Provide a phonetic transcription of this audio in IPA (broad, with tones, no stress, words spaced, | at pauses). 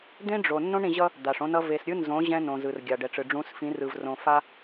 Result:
d̪ẽ˦ɖ͡ʐo˨ nːõ˦ɳɾĩ˨ʑʌ˦ | d̪a˨ʂõ˦nʌ˦ ve˨sɾʲɯ˦nzõ˨˦ ʑɛ̃˦ nõ˨ zɯ˨rɡʲa˨ɖɛ˨ʈ͡ʂɯ˨ ɖ͡ʐũ˨˦sfĩ˨˦rɯ˨v rõ˨fa˦